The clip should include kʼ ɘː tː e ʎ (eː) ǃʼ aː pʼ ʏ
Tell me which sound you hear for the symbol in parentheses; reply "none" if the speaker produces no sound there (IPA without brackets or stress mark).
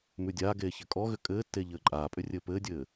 ɘː